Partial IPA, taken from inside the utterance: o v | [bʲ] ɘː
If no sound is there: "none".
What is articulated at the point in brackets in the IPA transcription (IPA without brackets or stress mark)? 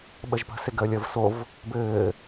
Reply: b